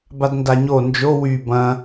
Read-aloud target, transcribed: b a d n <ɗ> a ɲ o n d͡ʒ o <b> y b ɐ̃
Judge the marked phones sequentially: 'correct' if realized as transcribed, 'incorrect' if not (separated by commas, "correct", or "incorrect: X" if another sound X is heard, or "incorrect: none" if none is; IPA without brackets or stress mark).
incorrect: d, incorrect: w